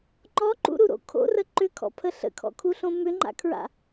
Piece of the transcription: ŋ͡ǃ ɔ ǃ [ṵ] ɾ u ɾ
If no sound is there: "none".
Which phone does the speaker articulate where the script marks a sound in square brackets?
ṵ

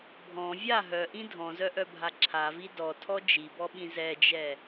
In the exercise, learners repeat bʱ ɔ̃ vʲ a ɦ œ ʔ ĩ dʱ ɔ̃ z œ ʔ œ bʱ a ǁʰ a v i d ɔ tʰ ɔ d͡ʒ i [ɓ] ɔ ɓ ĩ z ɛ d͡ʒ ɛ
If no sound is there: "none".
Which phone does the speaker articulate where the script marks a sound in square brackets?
b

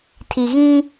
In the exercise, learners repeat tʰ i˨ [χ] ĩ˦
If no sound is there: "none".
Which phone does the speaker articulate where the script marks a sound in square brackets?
ɣ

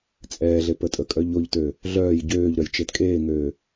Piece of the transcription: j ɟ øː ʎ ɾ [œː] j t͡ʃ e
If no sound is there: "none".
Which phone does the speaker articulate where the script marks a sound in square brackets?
œ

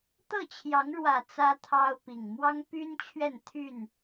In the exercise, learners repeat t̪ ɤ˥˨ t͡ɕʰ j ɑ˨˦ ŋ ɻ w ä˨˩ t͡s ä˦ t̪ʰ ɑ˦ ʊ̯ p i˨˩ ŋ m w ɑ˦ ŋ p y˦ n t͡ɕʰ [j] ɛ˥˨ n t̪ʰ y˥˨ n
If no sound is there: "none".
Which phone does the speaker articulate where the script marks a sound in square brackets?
ɥ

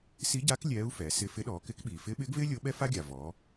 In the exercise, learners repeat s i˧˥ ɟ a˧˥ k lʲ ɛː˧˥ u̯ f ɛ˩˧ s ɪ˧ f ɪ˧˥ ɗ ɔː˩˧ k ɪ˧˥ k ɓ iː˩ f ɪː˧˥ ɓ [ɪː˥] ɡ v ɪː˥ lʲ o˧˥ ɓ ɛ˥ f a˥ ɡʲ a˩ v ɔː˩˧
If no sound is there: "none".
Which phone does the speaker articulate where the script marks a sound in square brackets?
ɪː˧˥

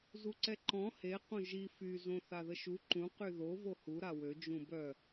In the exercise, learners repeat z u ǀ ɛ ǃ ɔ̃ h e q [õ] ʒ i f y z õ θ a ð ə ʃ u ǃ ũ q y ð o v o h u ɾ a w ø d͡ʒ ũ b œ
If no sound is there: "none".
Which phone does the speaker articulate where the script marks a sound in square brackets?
õ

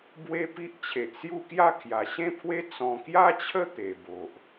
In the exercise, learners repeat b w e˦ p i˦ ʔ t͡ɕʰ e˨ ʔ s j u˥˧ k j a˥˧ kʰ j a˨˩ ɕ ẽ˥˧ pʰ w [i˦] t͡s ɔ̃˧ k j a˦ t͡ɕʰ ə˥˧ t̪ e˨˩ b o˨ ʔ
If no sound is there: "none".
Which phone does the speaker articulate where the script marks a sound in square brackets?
e˦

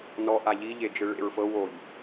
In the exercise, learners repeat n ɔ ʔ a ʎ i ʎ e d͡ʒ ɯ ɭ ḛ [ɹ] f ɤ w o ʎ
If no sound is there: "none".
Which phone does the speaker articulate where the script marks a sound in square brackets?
ɹ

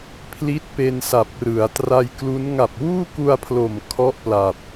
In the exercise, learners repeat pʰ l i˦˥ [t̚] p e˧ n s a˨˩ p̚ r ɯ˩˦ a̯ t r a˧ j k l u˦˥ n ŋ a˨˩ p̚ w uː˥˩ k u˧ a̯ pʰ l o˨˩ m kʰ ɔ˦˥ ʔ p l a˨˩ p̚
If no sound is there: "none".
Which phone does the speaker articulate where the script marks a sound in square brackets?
t̚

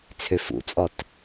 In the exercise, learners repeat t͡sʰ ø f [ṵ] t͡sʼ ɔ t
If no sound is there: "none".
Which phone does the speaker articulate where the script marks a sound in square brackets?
ṵ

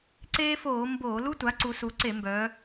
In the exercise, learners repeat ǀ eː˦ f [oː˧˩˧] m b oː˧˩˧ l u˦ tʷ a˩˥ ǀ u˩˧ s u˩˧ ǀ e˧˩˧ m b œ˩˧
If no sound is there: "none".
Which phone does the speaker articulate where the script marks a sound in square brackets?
oː˧˩˧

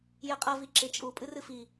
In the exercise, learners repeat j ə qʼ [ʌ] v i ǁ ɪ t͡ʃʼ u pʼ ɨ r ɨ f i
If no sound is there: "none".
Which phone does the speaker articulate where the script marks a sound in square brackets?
ʌ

